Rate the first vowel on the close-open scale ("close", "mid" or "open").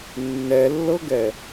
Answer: mid